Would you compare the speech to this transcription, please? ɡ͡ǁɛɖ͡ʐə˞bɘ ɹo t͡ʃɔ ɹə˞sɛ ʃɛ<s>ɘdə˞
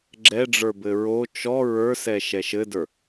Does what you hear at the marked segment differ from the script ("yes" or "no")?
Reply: yes